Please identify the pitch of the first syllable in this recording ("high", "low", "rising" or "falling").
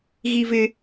high